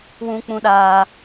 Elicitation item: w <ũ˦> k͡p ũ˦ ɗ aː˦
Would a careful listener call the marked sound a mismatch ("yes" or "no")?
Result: no